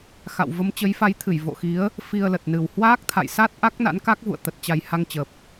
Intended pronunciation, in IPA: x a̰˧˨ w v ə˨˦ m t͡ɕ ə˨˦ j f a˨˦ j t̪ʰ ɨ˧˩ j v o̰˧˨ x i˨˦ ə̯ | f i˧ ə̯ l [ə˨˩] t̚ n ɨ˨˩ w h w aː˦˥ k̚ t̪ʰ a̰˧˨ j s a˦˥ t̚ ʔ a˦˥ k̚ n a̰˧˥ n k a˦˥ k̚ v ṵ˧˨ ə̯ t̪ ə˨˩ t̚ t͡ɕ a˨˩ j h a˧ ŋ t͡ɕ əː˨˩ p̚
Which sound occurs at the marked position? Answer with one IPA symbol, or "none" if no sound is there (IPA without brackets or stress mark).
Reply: ə˨˩